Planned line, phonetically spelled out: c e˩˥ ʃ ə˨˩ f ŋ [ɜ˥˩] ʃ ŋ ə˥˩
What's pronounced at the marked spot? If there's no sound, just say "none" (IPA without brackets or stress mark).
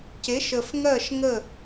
ɜ˥˩